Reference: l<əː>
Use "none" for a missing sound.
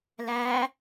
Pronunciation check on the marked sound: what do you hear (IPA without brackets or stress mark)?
æː